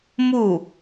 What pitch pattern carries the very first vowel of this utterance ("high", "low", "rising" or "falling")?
falling